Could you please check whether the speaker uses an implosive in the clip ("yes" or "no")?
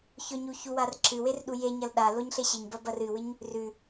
yes